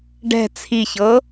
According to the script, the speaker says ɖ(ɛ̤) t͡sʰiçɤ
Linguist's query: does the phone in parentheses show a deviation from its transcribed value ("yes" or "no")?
no